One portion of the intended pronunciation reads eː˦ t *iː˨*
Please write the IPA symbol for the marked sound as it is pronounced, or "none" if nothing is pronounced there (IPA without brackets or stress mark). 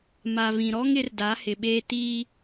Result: iː˦